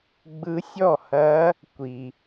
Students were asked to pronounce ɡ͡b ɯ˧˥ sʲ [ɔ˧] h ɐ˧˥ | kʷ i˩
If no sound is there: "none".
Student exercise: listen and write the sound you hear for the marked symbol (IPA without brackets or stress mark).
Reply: ɔ˥˩